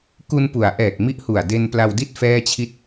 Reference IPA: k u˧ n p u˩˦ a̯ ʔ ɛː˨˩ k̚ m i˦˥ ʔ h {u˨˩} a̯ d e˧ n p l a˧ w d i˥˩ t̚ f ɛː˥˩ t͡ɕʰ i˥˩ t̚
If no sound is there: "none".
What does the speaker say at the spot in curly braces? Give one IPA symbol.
u˨˩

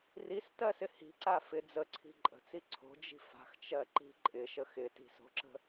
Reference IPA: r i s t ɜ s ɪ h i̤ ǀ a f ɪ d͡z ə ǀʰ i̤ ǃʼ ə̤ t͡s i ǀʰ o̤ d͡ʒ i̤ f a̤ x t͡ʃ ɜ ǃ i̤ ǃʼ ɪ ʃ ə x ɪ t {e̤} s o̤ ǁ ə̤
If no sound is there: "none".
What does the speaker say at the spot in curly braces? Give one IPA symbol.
i̤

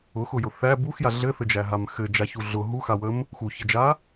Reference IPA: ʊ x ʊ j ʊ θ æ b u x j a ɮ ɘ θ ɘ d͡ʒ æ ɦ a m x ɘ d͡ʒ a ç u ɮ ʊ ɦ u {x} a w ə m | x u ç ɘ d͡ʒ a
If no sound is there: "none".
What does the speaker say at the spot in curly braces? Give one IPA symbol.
x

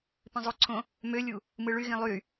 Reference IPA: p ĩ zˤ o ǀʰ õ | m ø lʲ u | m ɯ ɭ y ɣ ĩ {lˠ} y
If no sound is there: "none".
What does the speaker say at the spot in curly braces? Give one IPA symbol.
lˠ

